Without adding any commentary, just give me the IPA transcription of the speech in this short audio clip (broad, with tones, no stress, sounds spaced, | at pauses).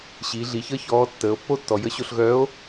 ɕ i˩˧ ɮ i˩ ç əː˥ ç ɔː˧˥ tː əː˩˧ o̯ pː o˥ tː ɔ˩ j ə˧˥ ɕ o˧ ɬ ɣ œː˧˥ o̯